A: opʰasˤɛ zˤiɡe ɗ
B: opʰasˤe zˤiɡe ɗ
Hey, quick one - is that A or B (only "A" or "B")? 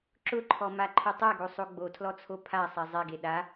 A